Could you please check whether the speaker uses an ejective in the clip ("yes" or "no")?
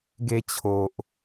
no